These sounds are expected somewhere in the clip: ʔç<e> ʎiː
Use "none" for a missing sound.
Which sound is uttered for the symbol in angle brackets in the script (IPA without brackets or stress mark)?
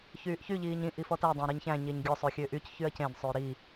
y